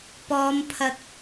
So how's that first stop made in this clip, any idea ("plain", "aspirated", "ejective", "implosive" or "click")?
plain